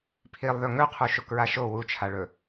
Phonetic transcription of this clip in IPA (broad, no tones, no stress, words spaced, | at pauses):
pʰilˠðɵ ŋɵqʰu ʃokɹaʃo wut͡ʃʰaɭɵ